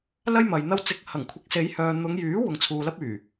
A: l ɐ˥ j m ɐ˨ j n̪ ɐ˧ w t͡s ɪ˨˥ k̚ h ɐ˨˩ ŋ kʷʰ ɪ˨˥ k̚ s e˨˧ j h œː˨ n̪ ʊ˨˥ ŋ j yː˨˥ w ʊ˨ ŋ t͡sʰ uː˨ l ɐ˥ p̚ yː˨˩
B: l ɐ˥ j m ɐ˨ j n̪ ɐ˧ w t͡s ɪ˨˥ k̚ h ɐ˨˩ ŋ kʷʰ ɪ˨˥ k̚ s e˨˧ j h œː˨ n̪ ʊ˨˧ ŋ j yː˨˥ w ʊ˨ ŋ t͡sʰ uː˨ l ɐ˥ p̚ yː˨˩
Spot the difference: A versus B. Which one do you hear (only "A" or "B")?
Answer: B